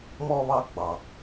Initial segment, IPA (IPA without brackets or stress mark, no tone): m